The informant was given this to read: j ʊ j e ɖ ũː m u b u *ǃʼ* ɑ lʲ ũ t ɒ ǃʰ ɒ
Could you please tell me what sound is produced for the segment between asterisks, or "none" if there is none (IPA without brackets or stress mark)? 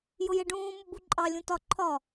ǃʼ